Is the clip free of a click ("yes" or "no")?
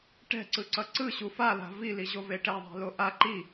no